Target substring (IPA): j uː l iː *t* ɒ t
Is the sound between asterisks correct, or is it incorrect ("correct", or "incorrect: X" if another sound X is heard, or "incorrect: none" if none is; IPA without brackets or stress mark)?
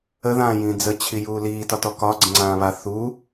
correct